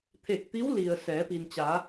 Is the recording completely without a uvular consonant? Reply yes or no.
yes